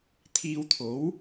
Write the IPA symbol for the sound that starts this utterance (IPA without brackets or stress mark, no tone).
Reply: t̪ʰ